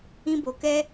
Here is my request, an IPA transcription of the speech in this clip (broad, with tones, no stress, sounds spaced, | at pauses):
ĩ˦ b o˧ k ɛ˦